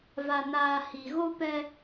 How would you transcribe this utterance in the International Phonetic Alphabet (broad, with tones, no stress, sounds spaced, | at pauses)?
v a˨ n aː˨ h i˨ ɣ o˦ p ɛ˦